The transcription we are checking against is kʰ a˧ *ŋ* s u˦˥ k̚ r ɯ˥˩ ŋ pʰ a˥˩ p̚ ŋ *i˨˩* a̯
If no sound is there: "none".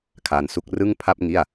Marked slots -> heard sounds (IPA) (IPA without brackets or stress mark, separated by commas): n, i˥˩